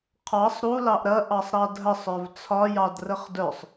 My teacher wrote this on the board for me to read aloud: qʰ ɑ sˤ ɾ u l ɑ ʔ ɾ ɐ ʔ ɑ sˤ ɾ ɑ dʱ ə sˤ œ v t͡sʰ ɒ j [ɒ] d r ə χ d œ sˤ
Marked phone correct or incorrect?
incorrect